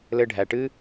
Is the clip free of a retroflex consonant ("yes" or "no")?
no